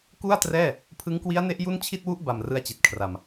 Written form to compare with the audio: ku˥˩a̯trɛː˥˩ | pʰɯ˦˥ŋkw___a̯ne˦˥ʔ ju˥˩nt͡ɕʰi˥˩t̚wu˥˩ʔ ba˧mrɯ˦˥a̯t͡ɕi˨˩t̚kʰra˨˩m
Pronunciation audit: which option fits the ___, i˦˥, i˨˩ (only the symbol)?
i˦˥